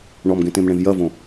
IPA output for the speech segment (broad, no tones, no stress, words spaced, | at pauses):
ɳɔmɡẽtẽmɳẽv jɐvõ